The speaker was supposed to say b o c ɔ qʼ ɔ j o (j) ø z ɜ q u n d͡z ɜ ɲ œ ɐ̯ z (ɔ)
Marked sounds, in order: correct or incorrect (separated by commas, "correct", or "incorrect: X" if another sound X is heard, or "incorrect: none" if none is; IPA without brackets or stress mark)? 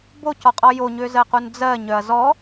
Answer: incorrect: ɲ, correct